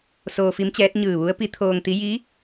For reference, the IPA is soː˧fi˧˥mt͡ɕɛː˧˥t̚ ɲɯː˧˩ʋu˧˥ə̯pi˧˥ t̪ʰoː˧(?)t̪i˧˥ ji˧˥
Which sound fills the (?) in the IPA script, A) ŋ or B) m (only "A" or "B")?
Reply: A